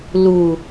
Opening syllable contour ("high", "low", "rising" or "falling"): low